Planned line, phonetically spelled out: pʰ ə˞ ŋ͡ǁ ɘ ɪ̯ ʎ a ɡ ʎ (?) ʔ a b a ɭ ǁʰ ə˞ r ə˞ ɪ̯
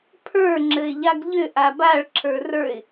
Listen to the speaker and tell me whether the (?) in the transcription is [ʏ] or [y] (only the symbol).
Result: ʏ